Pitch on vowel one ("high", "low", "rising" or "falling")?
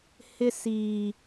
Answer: high